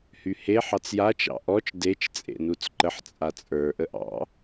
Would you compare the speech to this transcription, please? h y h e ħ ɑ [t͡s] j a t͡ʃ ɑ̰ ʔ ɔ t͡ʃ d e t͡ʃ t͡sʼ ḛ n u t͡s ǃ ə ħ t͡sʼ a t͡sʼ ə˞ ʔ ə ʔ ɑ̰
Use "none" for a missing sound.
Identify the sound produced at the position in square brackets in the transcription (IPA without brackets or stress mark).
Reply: t͡s